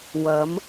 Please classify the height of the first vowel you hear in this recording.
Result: low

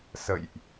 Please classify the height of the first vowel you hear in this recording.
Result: mid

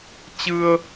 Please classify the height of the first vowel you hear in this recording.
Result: high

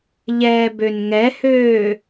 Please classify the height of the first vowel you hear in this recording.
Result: mid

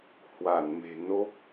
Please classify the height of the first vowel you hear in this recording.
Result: low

